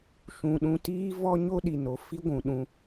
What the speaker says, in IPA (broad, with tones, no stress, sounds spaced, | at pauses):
ʃ ũ˨ ɗ ũ˧ t iː˦ v ɔ˦ ɲ o˦ ɗ i˨ n o˨ f i˦ ɡʷ ũ˨ ɗ ũ˧